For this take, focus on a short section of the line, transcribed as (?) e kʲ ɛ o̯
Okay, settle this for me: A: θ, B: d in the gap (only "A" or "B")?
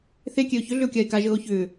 A